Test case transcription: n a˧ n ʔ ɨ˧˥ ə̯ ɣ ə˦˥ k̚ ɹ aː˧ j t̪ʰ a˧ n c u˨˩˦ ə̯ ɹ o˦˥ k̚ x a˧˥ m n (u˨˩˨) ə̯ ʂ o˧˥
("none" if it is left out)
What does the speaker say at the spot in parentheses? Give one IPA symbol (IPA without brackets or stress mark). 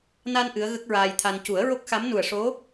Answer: u˨˩